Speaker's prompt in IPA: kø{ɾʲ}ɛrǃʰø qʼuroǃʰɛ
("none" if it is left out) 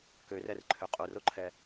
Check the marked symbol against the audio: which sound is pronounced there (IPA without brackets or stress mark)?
r